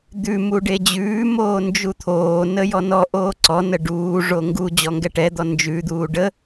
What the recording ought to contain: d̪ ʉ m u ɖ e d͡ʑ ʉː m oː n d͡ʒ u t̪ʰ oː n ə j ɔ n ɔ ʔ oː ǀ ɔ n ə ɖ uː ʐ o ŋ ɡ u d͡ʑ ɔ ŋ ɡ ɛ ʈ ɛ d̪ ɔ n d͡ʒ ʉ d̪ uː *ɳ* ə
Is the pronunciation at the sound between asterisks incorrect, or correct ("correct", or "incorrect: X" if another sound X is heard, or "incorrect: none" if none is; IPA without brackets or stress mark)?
incorrect: ɖ